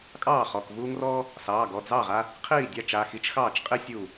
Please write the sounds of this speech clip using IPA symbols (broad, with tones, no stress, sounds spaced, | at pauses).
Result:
kʼ ɑː˥˩ χ ɔ˩˧˩ k v uː˦ ŋ r ɔː˦ | s ɑː˩˧˩ ɡ ɔ˩˧˩ d͡z ɑ˥˩ ʁ a˦ | qʰ iː˥˩ dʲ ɑ˦ t͡ʃ a˩˧˩ x i˦ t͡ʃ x ɑː˥˩ t͡ʃ qʼ i˦ sʲ uː˧˩